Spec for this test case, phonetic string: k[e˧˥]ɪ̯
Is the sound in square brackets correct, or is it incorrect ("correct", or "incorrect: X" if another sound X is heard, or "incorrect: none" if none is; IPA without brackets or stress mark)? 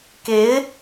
correct